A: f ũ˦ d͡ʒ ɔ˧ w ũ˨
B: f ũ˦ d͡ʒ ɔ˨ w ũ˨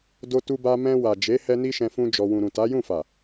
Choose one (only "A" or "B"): A